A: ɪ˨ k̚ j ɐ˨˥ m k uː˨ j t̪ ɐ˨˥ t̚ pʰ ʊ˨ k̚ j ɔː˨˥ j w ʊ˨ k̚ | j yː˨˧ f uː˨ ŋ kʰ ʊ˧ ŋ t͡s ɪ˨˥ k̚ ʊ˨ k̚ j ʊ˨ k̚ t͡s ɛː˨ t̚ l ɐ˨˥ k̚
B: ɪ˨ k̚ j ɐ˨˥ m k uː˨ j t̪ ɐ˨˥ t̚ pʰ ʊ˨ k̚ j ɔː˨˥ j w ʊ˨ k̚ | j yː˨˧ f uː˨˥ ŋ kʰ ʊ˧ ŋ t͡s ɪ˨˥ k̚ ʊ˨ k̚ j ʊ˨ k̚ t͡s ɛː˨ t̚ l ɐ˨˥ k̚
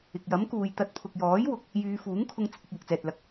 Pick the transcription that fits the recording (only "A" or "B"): B